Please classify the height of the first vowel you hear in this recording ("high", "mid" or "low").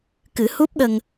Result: high